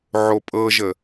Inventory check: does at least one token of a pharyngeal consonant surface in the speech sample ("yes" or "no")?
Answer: yes